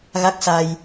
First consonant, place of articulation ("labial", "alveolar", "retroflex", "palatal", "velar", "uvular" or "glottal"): velar